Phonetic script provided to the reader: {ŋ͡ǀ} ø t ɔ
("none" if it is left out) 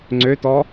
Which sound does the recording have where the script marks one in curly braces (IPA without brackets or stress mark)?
ŋ͡ǀ